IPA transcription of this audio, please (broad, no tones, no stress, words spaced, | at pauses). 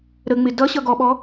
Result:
ɾəŋ͡mɪ dʌɕʌ ɡɔɓɔ